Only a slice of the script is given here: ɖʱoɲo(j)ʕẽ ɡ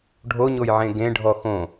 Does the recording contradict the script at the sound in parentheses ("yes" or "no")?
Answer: no